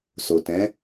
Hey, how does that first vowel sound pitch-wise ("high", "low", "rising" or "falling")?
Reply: low